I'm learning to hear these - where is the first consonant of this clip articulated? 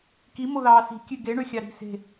velum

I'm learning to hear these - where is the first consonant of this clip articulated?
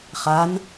uvula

